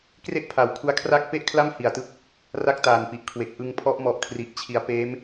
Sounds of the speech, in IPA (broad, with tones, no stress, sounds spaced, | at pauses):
k r e˥˩ ʔ pʰ a˩˦ w kʰ u˦˥ a̯ kʰ r a˥˩ k̚ p e˥˩ ʔ kʰ l a˥˩ m h i˨˩ a̯ t ɯ˥˩ k̚ | r a˥˩ k̚ t aː˨˩ n p i˨˩ ʔ kʰ w e˨˩ k̚ ʔ ɯ˧ ŋ pʰ ɔ˦˥ ʔ m ɔ˨˩ ʔ kʰ r i˨˩ ʔ t͡ɕʰ i˩˦ a̯ p eː˦˥ m